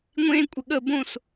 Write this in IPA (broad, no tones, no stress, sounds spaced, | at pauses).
ŋʷ ẽ kʷʼ ə ɠ ə b õ s